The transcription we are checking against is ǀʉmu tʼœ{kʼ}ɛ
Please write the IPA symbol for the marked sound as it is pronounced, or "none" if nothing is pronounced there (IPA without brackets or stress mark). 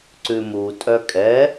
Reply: kʼ